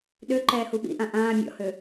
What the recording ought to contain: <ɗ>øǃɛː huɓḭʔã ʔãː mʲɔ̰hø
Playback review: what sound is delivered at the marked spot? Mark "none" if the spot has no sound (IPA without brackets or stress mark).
ɗ